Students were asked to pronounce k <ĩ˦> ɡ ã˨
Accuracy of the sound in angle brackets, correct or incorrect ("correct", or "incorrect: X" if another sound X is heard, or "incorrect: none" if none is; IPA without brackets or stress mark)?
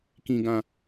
incorrect: ĩ˨